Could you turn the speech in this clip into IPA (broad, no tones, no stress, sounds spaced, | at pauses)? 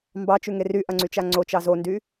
m b ɑ t͡ʃ ʉ ŋ e r y ʔ ɐ ŋ͡ǀ y t͡ʃ a ŋ͡ǀ o t͡ʃ ɑ z o n d y